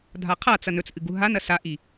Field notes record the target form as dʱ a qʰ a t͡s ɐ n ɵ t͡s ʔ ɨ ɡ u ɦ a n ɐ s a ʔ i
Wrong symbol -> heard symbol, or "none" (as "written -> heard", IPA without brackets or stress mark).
none